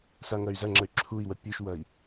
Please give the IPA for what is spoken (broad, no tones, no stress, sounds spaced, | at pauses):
s a ŋ ɐ y̯ z ɐ ŋ͡ǁ ə y̯ ǁʰ u i̯ w ə pʲ u ʃ w ɐ i̯